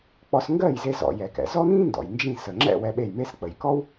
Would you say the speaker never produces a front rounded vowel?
yes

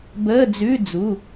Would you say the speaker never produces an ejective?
yes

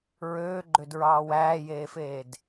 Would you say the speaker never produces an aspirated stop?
yes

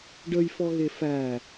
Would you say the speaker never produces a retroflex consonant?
no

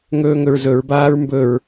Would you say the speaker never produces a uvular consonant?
yes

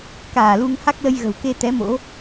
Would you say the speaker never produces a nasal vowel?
yes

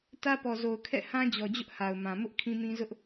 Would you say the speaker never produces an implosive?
yes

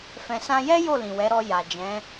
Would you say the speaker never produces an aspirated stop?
yes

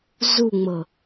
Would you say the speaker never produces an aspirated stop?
yes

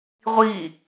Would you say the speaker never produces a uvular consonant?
no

